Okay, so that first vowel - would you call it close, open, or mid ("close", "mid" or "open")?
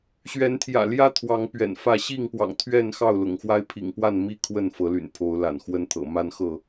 mid